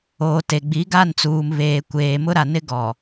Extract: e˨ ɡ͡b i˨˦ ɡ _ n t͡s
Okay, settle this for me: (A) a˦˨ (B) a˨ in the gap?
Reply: A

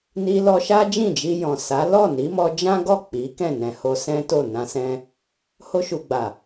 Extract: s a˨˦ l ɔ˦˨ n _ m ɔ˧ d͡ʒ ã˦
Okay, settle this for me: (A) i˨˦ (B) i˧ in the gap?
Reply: A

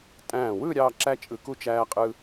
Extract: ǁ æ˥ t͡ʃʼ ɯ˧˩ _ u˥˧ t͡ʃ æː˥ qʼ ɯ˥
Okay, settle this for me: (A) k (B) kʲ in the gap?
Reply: A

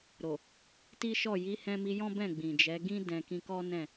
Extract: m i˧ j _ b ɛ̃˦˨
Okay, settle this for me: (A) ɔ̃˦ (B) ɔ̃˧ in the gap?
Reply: A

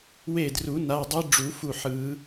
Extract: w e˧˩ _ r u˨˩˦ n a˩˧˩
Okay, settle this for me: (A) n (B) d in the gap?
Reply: B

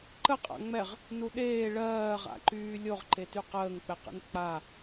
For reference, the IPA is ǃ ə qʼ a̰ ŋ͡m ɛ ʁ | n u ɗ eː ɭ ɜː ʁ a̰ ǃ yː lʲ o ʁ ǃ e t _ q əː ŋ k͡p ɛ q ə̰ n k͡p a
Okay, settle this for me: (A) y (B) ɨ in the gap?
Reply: A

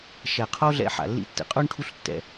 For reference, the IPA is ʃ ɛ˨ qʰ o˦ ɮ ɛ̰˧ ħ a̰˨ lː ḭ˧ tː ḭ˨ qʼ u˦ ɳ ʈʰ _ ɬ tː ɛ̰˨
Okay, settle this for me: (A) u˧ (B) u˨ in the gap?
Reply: A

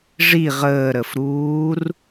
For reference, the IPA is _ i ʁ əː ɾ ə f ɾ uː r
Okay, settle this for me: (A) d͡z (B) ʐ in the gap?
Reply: B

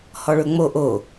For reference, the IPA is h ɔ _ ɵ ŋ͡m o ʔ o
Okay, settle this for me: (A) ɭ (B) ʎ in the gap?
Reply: A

